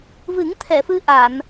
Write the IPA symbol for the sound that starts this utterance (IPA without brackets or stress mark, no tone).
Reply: v